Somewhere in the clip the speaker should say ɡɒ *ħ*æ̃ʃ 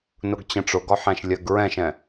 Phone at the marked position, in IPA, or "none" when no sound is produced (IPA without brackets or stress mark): ħ